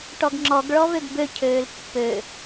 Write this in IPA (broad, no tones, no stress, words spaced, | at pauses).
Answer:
ʈɔɡŋ͡ǁɔɡ ɭɔvøɡbø cʰøːlpːø